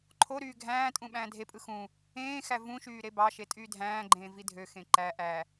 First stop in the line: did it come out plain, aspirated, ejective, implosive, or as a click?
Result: click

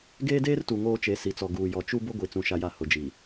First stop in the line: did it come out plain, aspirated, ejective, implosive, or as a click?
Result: plain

